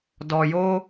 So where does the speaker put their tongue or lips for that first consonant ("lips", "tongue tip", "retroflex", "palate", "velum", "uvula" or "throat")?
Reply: tongue tip